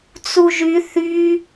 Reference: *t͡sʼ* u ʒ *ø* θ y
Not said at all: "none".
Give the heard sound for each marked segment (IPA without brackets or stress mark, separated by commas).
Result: t͡s, y